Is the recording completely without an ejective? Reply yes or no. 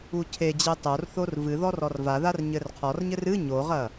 yes